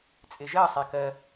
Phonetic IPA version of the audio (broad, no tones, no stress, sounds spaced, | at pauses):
t͡sʼ ɪ ʒ ɜ sˤ ɛ k ɜ